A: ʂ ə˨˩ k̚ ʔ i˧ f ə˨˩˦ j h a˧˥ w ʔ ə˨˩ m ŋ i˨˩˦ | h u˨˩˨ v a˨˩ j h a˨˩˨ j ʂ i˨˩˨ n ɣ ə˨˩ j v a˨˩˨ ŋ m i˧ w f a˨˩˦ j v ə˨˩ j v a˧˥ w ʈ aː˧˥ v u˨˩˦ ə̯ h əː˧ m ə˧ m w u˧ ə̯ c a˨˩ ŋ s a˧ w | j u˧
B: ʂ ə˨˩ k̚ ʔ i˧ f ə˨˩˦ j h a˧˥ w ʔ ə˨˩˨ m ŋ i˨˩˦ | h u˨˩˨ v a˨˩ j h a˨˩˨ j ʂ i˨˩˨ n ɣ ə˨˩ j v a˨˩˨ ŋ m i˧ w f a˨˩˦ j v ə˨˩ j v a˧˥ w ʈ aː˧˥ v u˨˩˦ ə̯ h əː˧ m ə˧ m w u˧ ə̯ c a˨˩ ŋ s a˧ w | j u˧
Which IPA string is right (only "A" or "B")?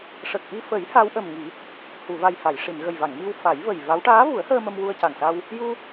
A